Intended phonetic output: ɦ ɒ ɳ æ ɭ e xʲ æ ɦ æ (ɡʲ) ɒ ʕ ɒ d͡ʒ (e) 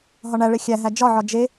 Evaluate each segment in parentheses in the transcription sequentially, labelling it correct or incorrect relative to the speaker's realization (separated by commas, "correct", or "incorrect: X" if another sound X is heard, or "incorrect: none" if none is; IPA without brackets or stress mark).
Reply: incorrect: d͡ʒ, correct